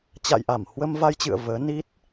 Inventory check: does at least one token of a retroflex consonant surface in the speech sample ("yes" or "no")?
no